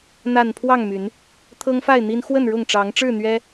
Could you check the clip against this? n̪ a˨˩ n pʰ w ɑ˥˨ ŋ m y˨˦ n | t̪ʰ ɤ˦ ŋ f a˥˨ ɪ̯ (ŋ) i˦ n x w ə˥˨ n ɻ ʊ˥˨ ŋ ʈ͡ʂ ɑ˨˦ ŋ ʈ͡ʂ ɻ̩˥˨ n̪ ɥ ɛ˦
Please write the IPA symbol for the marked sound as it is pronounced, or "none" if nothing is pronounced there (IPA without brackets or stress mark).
n̪